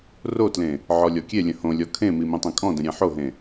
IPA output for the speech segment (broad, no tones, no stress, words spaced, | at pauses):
rotlẽ | ʕɔlʲɔkʲelʲə̃ hõlʲɔ kʰẽmi mĩtˤẽkʼɔ̃də̃ ɾʲẽħoɦẽ